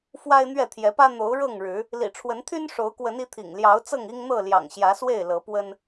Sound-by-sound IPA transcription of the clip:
fwa˦ɪ̯n̪ɥɛ˥˨t̪ʰjɛ˨˦pä˦ n̪o˨˦ʊ̯ ɻɤ˥˨ŋɻɻ̩˨˦ | lḭ˨˩ʈ͡ʂʰwə˨˦n t̪ʰy˦n ʂo˨˦ʊ̯ kwə˨˦ni˨˦ t̪ʰḭ˨˩ŋ ljɑ˨˦ʊ̯t͡sɤ˥˨ŋ i˦ŋn̪ɤ˥˨ ljɑ̰˨˩ŋɕjä˨˦swe˥˨ɪ̯ lɤ˨˦pwə˦n

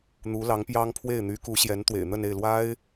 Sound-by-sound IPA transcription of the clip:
n̪u˧˥lɑ˧˥ŋpjɑ˥ŋpʰwe˥˩ɪ̯ n̪y˧˥ku˧˥ ɕjɛ˧˥nt̪wḛ˨˩ɪ̯n̪ə˥˧ne˥˩ɪ̯ lwa˥ɪ̯

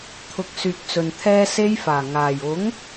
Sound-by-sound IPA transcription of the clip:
t̪ʰʊ˨˥k̚syː˨k̚t͡sɵ˨n t̪ʰɛː˥ se˧jfaː˨˩ ŋaː˨˩jʊ˨˥ŋ

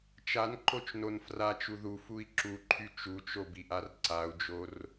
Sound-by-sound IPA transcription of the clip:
t͡ʃanǃot͡ʃnon frat͡ʃu ðufui̯ ǁuǃʰy t͡ʃut͡ʃobiʔar ǀau̯d͡ʒor

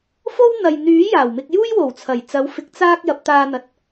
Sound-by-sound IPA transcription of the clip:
fo˥wn̪ɐ˨j n̪yː˨˥ jaː˨˩wmɪ˧k̚ juː˥jwo˨˩wt͡sʰɐ˨˩j t͡sɐ˨˧wfɪ˨˥k̚ t͡saː˧k̚ jɐ˨˥p̚t̪aː˧n̪ɐ˨˥t̚

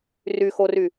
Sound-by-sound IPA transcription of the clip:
ryxory

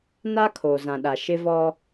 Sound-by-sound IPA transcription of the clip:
naː˦kʰoː˨zã˨ɗa˨ ʃɪ˦vɔ˦

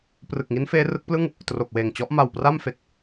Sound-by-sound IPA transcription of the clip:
prɯ˨˩k̚ŋi˦˥n feː˦˥rɯ˦˥k̚plɯ˥˩ŋ | tro˨˩k̚weː˨˩ŋt͡ɕɔ˦˥ʔ ma˨˩wpra˥˩mfe˨˩k̚

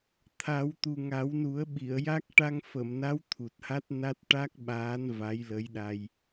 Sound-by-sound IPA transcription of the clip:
t̪ʰa˨˩˦wt̪u˨˩ ŋa˨˩˦wnu˨˩˦ə̯ɓi˨˩˨ə̯ja˦˥k̚ ʈa˧ŋfə˨˩˨mna˧˥w t̪ʰu˨˩t̚ha˦˥t̚ na˦˥t̚ ʈa˦˥k̚ɓaː˧˥n va˧˥jlə˧˥jɗa˧j

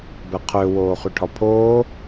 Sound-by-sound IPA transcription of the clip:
bɛqʰø woːχyʈʰɒpʰoː

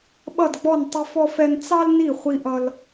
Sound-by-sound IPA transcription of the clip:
ɓʌ˥˨dɡ͡bɔ˥˨n tˤə˥fɔ˥fɛ˥n t͡sɑ˥lni˥˨ χʷi˥ʔʌ˥l

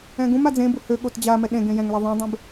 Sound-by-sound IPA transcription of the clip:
ɛ̃ɡũma d͡zẽbu høɠot d͡ʑamɛ ɗẽ ɡẽjɛ̃ŋlɛ ðˤẽdˤẽb

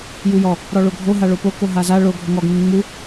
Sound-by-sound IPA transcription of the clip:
jujɔ | ɾɔɭoɡʱoɦa ɭopo koɦaza ɭo ɡʱoŋɔɡŋuŋ ŋ͡mu

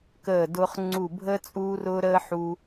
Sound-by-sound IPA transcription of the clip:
kəː˦˨dʊː˦χŋ͡ǀu˦˨ bʱə˦ t͡sʼuː˦rʊ˦ɾəː˦ħu˧

